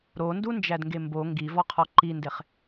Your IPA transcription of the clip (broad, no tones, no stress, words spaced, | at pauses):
ɾondund͡ʒædŋɡe mbo ŋɡivɒqʰɒ ǃindeχ